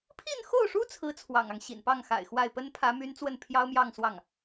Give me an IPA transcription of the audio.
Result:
pʰ i˥˧ n x o˥˩ ʊ̯ ʂ u˥ t͡sʰ ɹ̩˥ t͡sʰ w ɑ̰˨˩ ŋ ɑ˦ ŋ ɕ ḭ˨˩ n p ɑ˥˩ ŋ x a̰˨˩ ɪ̯ x w a˥˩ ɪ̯ p ə˥ n pʰ ä˧˥ m y˧˥ n t͡s w ə˥˩ n pʰ j ɑ˥ ʊ̯ m j ɑ˥˧ ŋ s w ɑ˥˩ ŋ

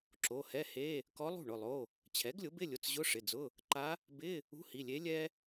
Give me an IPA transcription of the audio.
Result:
ǁ o˩˧˩ h ɛ˧˥˧ h e˧˥˧ | k ɔ˧˥ lˠ ṳ˥˩ ɳ ʊ˩˧˩ lˠ o˩˧˩ | t͡ɕʰ ɛ˩˥ ɡ lʲ ʊ˩˥ b ɪ˧˥˧ lʲ ʊ˩˧˩ t͡s ʑ ʊ˧˥˧ ʂ ɪ˩˧˩ d͡z ʊ˧˥˧ | ǃ a˧˥ | b ɪ˧˥˧ | ṳ˧˥˧ h i˩˧˩ lʲ e˧˥ lʲ ɛ˥

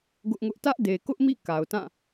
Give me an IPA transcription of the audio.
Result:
ɡ ʊ˦ ʔ ŋ ʊ˦ ʔ t ä˦ ʔ d e˨ k ʊ˦ ʔ m ḭ˦˨ k a˨ ʊ̯ t ã˦˨

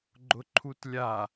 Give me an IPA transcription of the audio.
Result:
ɡ͡ǃ ʊ ǃʰ u t lʲ a

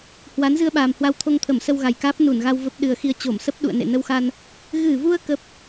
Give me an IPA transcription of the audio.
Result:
h w a˨˦ n z ɨ˧ ə̯ ɓ aː˨˩ m h w a˧ w t̪ʰ o˧ ŋ t̪ʰ ə˧˩ m s ə˧ w ɣ a˨˩ j k aː˦˥ p̚ n u˧˩ n ɣ a˧ w v ə˦˥ p̚ ɗ ɨ˨˩ ə̯ x i˧ ə̯ t͡ɕ o˧˩ m s ə˦˥ p̚ ɗ ṵ˧˨ ə̯ n ḛ˧˨ n ə˧ w x a˧ n | ɣ ɨ˧˩ v u˧ ə̯ k ə˦˥ p̚

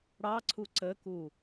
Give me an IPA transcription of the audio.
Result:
ɽ ɑ ǀʰ u ǀ ə k u

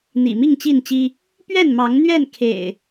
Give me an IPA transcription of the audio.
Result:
n̪ ḭ˨˩ m i˥˨ ŋ t͡ɕ i˥˨ n t͡ɕ i˦ | p ɥ ɛ˥˨ n m ɑ˨˦ ŋ n̪ ɥ ɛ˥˨ n kʰ ḛ˨˩ ɪ̯

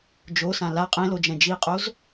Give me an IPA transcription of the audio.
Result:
d͡ʒ o s ã l a qʼ ẽ l o d͡ʒ ɛ̃ d͡ʒ i qʼ o z

